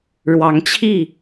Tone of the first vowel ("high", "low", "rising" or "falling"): rising